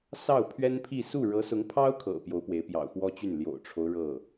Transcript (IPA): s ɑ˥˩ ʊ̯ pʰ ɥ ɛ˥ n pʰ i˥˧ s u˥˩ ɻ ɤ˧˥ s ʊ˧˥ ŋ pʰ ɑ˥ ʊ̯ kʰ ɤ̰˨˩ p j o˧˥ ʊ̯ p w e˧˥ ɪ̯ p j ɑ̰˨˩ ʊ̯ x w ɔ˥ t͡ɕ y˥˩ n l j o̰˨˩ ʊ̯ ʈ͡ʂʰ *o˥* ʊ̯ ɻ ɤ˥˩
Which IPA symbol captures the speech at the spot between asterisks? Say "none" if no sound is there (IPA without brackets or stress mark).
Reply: o˦